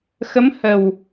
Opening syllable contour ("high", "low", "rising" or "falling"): rising